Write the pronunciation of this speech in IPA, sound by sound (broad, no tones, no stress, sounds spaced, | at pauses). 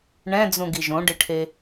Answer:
ɳ ɛ̃ d͡z ũ ɡ i ʒ õ ɖ ɪ ʈʰ e